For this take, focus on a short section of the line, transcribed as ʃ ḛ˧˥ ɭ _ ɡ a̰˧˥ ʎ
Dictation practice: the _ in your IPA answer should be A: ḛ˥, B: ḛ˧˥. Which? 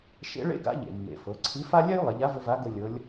A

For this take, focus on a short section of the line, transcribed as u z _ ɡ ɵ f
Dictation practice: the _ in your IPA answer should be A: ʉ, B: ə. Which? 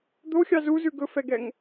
A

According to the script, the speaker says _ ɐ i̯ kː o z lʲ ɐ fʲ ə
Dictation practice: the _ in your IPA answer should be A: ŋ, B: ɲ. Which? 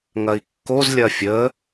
A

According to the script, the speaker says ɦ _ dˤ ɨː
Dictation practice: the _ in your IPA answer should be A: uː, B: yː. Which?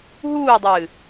A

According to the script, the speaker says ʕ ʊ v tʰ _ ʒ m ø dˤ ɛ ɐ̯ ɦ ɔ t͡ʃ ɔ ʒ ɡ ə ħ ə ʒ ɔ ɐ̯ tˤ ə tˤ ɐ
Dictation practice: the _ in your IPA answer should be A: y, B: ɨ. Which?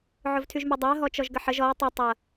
A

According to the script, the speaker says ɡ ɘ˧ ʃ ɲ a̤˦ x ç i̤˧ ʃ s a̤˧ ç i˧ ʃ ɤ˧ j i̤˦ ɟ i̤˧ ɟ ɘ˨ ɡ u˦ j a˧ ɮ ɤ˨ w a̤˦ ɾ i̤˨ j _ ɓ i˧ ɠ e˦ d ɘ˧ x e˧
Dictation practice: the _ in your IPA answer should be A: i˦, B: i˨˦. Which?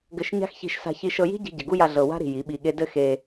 B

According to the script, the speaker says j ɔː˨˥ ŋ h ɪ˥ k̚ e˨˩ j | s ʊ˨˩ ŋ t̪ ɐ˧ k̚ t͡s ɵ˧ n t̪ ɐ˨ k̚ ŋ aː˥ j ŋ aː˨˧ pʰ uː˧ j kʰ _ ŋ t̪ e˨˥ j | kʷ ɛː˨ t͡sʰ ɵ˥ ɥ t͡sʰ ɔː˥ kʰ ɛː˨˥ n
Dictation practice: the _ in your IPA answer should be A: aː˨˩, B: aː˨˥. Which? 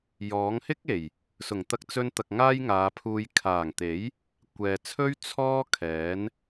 A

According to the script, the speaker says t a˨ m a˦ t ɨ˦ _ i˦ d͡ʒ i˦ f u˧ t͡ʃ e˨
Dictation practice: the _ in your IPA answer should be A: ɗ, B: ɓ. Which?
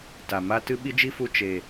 B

